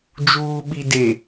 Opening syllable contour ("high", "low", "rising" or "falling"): low